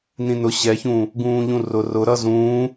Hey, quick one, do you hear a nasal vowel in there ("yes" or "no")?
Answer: yes